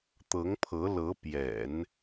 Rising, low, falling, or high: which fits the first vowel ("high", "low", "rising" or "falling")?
rising